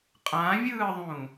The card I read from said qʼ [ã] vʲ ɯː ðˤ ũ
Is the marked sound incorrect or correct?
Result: correct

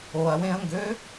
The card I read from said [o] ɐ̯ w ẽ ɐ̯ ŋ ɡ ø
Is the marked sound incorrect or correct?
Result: correct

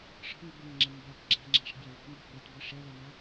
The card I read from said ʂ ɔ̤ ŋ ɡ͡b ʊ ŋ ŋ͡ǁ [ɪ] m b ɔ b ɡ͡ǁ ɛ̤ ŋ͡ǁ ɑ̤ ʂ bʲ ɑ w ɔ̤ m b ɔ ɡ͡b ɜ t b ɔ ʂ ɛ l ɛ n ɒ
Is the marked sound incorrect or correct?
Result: correct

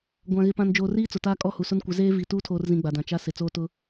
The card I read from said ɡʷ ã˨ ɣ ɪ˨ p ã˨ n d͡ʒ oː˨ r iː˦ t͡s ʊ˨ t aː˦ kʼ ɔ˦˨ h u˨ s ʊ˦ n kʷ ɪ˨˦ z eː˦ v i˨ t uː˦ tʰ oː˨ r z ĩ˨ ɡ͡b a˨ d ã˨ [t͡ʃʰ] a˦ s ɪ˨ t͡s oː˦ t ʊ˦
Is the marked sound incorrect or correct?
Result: incorrect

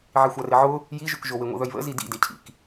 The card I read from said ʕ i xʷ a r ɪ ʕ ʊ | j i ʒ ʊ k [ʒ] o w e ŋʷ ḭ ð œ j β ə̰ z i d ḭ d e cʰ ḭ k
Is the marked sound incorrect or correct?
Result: correct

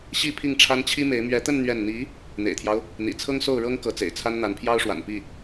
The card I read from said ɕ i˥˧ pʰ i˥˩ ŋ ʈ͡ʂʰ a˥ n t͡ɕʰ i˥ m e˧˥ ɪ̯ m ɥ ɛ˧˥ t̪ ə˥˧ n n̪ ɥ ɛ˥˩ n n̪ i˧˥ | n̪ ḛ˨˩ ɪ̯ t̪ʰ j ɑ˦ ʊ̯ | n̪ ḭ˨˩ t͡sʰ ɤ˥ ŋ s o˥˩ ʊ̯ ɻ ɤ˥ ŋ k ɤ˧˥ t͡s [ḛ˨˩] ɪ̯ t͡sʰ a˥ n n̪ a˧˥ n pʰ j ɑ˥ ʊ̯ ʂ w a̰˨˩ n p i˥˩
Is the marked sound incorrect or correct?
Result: correct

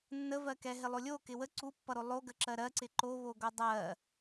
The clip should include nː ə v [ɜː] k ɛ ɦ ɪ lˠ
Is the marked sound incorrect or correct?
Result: incorrect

